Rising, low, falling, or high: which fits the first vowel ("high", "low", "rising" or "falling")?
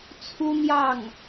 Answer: high